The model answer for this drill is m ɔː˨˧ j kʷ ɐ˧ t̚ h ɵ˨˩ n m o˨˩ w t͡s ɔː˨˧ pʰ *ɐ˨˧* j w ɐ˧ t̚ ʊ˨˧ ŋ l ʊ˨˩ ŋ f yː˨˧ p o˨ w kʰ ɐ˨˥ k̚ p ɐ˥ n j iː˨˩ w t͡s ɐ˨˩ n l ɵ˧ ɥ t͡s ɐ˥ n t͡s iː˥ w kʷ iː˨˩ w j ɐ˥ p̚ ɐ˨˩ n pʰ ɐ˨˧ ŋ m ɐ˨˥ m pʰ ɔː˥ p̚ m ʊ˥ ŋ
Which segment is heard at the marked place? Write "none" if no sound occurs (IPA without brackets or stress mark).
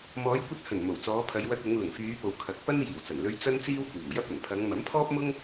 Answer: ɐ˨˧